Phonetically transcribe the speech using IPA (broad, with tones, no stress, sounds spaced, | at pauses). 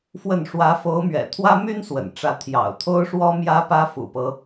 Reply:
f w ə˥˩ n ʂ w ä˧˥ f o˧˥ ʊ̯ m ɥ ɛ̰˨˩ t̪ʰ w ä˥ m y˥ n s w ə̰˨˩ n ʈ͡ʂ ä˧˥ t̪ʰ j ɑ̰˨˩ ʊ̯ t̪ʰ o˥ ʊ̯ ʂ w ɔ˥ m j ä˥ p ä˥ f ṵ˨˩ p ɤ˦